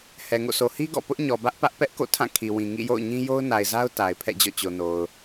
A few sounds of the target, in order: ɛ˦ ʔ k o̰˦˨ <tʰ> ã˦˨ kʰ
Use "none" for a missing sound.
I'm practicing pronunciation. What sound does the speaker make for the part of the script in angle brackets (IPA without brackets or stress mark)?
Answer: tʰ